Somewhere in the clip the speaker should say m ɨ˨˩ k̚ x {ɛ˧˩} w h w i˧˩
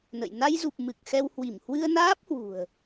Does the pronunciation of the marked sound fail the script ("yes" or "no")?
yes